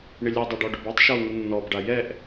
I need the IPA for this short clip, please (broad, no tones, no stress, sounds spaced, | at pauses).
ɳ ɪ lʲ ɛ dˤ a ɖ ɔ ɖ ʊ b ɛ tˤ ʃ ɔ u̯ ŋ ʊ nː ɔ b ɖ a j ɛ ʔ